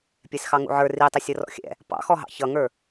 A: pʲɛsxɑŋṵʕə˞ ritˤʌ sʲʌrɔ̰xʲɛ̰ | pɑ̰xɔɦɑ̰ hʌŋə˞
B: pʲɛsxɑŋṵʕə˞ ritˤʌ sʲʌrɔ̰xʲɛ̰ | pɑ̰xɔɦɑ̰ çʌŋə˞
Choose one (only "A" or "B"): B